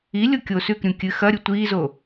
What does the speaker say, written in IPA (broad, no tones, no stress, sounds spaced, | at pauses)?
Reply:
i lʲ o kʲ o s ʉ k ɾʲ ũ kʲ ɨ x ɐ ɾʲ u tʷ iː z o